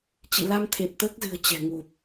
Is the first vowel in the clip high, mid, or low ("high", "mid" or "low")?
high